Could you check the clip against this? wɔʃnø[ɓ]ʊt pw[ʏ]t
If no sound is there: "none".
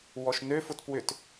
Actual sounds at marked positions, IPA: f, ʏ

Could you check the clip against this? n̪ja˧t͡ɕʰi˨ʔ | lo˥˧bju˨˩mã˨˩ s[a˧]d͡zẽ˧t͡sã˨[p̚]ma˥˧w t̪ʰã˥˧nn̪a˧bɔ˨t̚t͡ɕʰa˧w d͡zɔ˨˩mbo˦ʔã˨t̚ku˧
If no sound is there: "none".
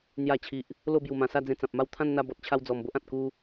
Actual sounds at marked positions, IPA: a˥˧, p̚

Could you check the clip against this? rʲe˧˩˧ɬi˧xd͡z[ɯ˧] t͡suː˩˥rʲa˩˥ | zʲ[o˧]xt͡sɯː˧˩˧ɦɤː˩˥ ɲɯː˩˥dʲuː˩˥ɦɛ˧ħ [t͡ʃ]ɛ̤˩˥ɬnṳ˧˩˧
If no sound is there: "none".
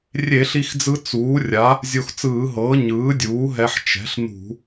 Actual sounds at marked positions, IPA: ɯ˧, o˧, t͡ʃ

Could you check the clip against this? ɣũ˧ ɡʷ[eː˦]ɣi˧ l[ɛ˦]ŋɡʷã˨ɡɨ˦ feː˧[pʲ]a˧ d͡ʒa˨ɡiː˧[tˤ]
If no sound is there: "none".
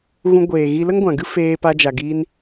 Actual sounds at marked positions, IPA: eː˨, ə˦, p, n

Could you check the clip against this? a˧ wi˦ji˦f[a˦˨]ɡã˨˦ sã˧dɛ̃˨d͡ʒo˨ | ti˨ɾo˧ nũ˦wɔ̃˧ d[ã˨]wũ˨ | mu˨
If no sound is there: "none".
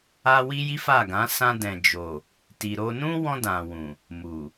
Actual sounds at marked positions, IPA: a˦˨, ã˨

